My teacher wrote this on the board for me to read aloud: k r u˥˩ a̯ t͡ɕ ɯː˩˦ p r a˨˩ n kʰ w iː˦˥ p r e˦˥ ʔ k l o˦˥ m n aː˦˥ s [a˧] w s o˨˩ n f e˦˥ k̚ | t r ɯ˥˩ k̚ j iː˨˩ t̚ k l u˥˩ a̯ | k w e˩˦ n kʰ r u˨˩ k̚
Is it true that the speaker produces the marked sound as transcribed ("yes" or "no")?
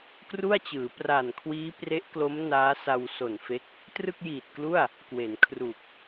yes